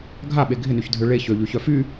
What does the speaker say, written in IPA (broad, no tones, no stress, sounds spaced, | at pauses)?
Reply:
ɡʱ a ɓ e ɡʱ ɪ n y ç dʱ ø ɭ e ç ø ʎ y ç œ f y